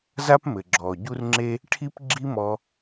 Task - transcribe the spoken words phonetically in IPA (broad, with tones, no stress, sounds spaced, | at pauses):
z a˦ p m ɘ˨ ɡ͡ǁ ɔː˨ ɟ u˦ r ŋ͡ǁ e˦ | ʈʰ i˦ p ɡ͡ǁ i˦ m ɔ˧